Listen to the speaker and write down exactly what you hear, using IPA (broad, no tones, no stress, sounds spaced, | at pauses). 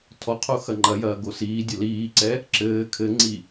tʰ ɔ qʰ o x ɐ ŋ͡ǃ ɐ j ɐː ɡ o s iː dʲ ɐ l iː ǀ ɛ | ǁ ɘː kʰ ɘ ŋ͡ǀ i